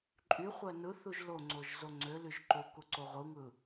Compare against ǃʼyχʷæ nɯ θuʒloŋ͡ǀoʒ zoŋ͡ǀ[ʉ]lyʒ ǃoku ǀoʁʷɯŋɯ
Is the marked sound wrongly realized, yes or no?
yes